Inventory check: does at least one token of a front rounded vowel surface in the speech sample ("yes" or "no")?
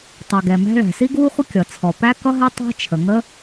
no